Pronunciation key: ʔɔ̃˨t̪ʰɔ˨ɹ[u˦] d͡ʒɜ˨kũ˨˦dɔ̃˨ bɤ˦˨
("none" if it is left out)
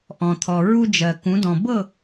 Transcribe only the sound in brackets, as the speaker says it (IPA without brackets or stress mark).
u˦